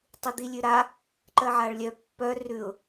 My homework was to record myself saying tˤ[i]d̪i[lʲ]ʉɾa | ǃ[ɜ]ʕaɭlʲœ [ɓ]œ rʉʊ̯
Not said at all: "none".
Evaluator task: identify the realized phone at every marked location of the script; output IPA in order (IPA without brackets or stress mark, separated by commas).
i, lʲ, ɜ, pː